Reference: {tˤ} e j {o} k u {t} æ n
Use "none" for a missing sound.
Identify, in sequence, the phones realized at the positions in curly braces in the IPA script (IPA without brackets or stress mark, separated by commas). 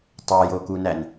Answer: tˤ, o, n